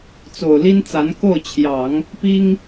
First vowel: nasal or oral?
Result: oral